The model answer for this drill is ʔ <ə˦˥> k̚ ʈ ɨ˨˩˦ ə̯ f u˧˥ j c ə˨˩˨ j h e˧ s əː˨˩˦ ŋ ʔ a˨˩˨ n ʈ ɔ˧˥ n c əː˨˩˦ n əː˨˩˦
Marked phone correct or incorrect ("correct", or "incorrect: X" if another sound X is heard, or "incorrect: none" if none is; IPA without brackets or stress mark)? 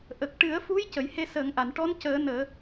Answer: incorrect: ə˨˩